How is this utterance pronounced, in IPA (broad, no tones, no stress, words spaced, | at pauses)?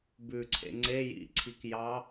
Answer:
bʉǀʰḛ ŋ͡ǀe jḭǀʰik jɑ